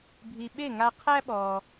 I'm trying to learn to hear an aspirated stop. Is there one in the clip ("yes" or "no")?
yes